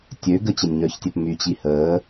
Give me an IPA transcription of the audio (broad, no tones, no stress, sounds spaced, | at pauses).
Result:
tʲ ø ɡ ə t͡ɕ ə nʲ ɲ œ ç tʲ ɛ p m y t͡ɕ i h əː